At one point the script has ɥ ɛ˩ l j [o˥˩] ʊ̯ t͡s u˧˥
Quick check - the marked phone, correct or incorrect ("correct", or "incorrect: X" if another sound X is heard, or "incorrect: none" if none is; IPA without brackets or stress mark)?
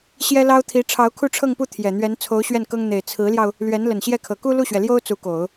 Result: incorrect: o˥